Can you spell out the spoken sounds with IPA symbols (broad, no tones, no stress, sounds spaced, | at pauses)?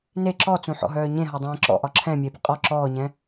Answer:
n e ǁ ɔ t͡s ũ ħ ɔ̰ ɦ œː ɲ ẽ ɦ ɒ dˤ ẽː ǁ ɔ̰ ʔ ɒ ǁʰ ɛ̃ mʲ e b ɪ qʼ ɔ ǁ ɔː ɲ ɛ̃